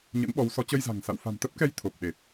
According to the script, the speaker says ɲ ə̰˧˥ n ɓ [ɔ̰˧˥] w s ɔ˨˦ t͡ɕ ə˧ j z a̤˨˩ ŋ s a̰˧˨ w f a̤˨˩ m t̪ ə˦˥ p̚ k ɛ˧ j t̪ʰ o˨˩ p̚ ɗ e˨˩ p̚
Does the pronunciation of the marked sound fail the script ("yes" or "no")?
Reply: yes